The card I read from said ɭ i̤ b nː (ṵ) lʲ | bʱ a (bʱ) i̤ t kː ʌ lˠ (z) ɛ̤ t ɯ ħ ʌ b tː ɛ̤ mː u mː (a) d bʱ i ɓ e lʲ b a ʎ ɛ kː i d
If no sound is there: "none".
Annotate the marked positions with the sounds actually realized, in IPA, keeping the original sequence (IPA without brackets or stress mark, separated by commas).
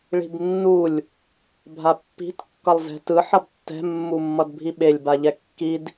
u, pː, z, ʌ